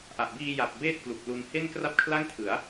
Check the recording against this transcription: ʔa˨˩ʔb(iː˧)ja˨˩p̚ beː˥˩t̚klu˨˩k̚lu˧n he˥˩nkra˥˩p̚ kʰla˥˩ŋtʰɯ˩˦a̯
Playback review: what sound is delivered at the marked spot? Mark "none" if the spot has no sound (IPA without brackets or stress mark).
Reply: iː˧